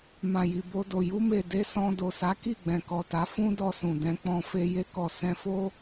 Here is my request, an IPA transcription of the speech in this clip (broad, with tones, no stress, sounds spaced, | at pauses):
m ã˨ j i˨ b o˧ d o˨ j u˧ m e˨ d e˧ s ɔ̃˧ d o˨ s a˨˦ k i˦˨ ɡ͡b ɛ̃˨ k ɔ˨ t a˨˦ f ũ˦ d ɔ˧ s ũ˨ d ɛ̃˧ k͡p ɔ̃˧ f e˧ j e˧ k ɔ˨ s ɛ̃˧ f o˦